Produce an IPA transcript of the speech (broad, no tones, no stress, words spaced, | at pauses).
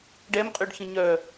ɖɛmqʼyɖçə̃ ɲœ